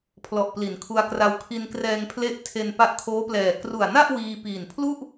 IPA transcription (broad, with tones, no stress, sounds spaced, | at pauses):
pʰ l ɔ˨˩ ʔ p l i˩˦ n kʰ u˧ a̯ k r a˧ w kʰ i˧ n k r ɛː˧ ŋ pʰ l e˦˥ ʔ tʰ e˧ n p a˦˥ ʔ kʰ oː˦˥ p l ɛː˨˩ k r u˨˩ a̯ n a˥˩ ʔ w iː˧ p iː˨˩ n pʰ l u˥˩ ʔ